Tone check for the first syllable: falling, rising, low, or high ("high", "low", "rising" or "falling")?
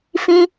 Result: high